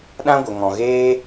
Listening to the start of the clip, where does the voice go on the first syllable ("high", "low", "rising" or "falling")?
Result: high